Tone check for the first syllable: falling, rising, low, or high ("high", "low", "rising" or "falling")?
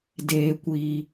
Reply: low